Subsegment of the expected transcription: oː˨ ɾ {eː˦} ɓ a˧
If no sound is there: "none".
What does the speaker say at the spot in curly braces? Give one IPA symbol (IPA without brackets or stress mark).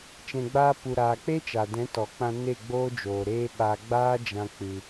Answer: eː˦